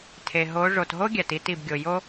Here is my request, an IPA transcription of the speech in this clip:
tʰ e˨ ɦ o˨˦ ʐ o˨ t ɦ o˥ ɡʲ æ˨ t i˧˥˧ t i˨ b ɡʲ o˨ j o˥

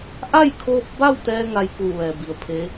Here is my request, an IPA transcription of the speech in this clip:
ʔ a˥˨ j kʰ oː˧ p̚ b a˥˨ w t̪ ɛː˧ ŋ a˧ j k uː˧˩ ʋ ɛː˩ b i˩ ə̯ pʰ e˧˥

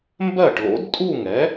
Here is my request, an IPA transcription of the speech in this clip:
m b ɜ˥˩ ʈ l o̰˩˥ d tʼ u˥˩ ŋ ɛ˩˥

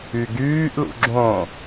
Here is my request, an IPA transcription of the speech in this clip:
y ɡ yː ʔ l ṵ ɡ͡ǁ õ

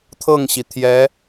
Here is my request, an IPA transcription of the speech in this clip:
t̪ʰ ɤ˥˩ ŋ ɕ i˩ t̪ʰ j ɛ˧˥

